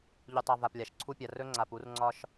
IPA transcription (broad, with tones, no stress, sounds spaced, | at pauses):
ʎ u˨ tˤ ɔ˨ v a˨ p lʲ a˨ ʃ ǀʰ u˦ pʲ a˨ r ɵ˦ ŋ͡ǀ a˨ p u˦ r ŋ͡ǀ ɒ˦ ʃ